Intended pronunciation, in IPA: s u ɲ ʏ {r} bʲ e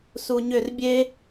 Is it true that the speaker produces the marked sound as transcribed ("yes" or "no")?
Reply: yes